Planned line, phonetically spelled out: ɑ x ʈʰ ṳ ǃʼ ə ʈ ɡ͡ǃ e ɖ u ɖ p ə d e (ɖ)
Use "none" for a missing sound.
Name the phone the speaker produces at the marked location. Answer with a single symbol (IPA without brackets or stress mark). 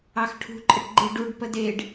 ɖ